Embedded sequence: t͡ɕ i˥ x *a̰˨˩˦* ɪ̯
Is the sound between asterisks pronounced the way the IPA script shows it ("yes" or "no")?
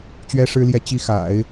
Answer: yes